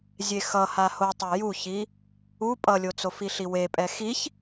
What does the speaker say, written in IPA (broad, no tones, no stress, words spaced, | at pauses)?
zʲexʌ hahotˤɛ juçi | u pʼʌlʲot͡sof iɬiwe pʼɛxiç